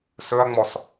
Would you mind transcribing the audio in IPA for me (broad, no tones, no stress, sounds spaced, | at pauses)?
s ɵ ɐ̯ ŋ͡m ɔ s